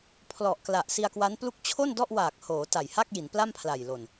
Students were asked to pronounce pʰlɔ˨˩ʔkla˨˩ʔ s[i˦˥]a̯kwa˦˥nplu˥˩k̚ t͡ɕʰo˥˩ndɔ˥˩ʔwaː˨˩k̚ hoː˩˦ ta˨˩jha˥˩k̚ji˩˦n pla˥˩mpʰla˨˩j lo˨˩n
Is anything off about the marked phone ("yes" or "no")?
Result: yes